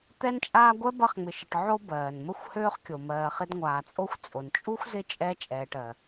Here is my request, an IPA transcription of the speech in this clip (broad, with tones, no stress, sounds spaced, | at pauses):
t̪ ɛ˦ n t͡ʃʼ aː˦ ɡʷ ɛ˥ b ɐ˦ χ ŋ͡m ɪ˨ ʃ ɪ˨ ʈ ʕ o˥ b ɜː˩ n m ə˥ xʷ h øː˥ χ kʲ o˩ m ɜː˨ χ ɪ˦ d ŋʷ aː˨ t͡sʼ o˥ xʷ t͡sʼ o˩ n t͡ʃʼ u˥ xʷ z ɪ˦ t͡ʃʼ ɛ˥ t͡ʃʼ ɛː˨ ʈ ɜ˩